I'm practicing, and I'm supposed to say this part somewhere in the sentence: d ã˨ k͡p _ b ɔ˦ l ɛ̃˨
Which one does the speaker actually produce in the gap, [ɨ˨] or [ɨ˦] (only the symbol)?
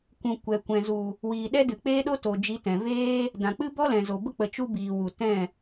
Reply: ɨ˦